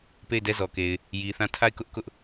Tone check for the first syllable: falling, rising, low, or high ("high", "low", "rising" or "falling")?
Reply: falling